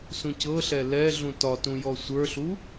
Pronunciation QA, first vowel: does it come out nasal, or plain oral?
nasal